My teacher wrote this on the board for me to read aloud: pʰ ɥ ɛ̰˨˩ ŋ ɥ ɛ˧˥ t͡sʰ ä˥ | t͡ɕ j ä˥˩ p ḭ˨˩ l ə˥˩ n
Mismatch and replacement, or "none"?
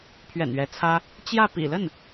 ŋ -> n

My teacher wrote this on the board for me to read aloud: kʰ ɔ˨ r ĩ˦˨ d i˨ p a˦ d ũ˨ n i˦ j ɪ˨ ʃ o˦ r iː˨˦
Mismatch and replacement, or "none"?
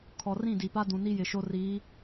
none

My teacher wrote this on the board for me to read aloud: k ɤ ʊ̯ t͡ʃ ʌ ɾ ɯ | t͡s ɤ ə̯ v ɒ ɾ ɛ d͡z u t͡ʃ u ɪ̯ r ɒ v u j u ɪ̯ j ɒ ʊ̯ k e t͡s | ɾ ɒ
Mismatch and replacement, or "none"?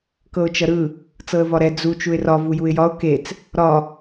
none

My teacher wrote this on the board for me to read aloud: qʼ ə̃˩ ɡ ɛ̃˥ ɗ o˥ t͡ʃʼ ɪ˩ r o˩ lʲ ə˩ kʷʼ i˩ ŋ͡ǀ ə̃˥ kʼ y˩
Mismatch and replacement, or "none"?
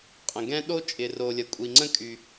none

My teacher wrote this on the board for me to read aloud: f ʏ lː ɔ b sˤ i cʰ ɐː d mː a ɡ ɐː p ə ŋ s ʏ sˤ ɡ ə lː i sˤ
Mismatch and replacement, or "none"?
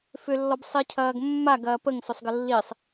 d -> ɡ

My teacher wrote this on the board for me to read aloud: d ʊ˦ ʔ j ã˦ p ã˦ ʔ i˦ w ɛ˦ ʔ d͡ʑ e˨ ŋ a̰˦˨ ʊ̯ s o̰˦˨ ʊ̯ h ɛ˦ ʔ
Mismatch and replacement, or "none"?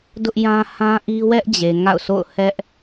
p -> h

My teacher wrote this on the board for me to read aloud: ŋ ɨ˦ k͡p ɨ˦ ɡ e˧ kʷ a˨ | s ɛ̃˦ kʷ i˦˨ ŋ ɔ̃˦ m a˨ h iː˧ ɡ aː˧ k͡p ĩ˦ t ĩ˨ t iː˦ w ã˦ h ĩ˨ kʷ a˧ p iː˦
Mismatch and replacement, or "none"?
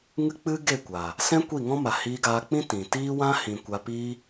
e˧ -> e˦˨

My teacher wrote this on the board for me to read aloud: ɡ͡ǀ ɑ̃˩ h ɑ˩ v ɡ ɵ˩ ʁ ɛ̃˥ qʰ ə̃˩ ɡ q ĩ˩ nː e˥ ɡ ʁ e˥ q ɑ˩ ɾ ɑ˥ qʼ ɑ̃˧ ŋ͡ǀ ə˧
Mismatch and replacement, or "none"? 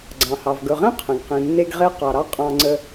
none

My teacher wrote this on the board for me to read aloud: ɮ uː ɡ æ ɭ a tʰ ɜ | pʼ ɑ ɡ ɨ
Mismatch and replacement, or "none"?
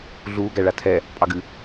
ɜ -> ɛ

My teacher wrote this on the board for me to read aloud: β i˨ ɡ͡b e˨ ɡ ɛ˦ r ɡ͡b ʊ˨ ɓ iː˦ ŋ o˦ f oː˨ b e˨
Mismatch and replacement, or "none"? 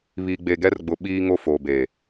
none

